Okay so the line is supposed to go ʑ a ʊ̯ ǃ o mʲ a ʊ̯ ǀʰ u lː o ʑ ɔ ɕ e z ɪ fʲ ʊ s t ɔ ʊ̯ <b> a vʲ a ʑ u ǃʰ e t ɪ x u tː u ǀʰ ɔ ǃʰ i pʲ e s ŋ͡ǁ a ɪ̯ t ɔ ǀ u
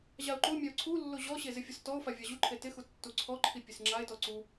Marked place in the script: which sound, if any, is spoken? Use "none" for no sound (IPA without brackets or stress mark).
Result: f